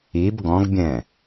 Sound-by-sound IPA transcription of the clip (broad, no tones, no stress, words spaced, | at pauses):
ib ɡɔ̃ɡbʲɛ̃